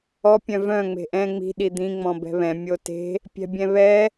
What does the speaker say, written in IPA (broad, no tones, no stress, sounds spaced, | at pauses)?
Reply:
ɔ pʲ œ̃ v œ̃ ŋ͡m e̤ ʔ ɛ̃ ŋ͡m i̤ ɗ i d̪ ĩ ŋ͡m ɔ̃ b ɛ̤ β ɛ̃ mʲ o t e̤ | pʲ ɛ̤ bʲ ɛ̃ β ɛ